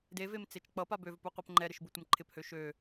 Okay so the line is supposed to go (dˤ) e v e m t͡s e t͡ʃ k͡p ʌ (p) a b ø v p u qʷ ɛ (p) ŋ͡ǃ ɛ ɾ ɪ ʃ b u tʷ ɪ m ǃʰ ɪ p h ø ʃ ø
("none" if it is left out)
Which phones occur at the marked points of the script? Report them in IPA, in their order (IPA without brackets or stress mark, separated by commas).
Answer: d, p, p